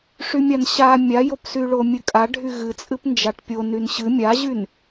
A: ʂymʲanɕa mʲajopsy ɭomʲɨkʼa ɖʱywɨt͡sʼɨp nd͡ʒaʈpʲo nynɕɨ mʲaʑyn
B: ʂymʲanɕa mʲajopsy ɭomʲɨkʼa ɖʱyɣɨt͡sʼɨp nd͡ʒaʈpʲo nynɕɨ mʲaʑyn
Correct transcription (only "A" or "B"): B